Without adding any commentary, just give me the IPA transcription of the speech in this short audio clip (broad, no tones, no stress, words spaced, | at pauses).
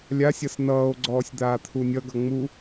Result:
lʲasʲʌs nʌːo̯ɡ͡ǀɔːsʲ d̪aːt̪ʰunʲʌɡʌ ŋ͡mu